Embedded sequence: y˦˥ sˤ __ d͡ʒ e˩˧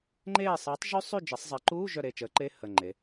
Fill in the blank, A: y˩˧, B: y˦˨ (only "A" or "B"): B